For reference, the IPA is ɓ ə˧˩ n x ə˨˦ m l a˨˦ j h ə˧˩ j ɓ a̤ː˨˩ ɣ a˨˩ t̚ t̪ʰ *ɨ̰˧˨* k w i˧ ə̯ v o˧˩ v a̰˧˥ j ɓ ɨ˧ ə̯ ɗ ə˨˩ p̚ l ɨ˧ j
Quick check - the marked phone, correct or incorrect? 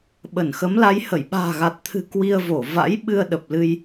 incorrect